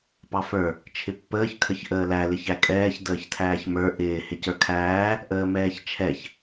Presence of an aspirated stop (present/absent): present